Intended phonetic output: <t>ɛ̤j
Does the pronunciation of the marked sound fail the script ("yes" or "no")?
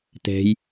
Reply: no